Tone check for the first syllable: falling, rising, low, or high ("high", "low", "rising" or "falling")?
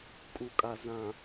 low